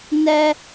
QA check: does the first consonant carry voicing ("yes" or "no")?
yes